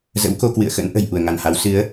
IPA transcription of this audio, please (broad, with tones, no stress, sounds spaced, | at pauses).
z ə̰˧˥ w k o˧ k w ɨ̰˧˨ ə̯ x ə̰˧˥ n ʔ ə̤˨˩ j ʔ u˧˩ ə̯ ŋ a˧˩ n h a˨˦ w s ɨ˨˦ ə̯